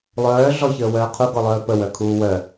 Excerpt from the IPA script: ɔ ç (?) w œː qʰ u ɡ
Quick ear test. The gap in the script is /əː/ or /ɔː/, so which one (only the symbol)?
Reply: əː